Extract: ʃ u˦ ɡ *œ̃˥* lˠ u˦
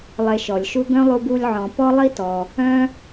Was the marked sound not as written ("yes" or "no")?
no